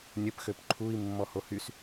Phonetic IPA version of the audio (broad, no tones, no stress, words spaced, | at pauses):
nʲəpxøp ǃʰui̯ mːɔhohys